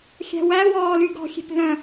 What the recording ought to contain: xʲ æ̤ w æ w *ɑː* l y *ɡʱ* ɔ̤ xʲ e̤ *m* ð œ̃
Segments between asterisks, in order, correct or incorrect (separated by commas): incorrect, incorrect, incorrect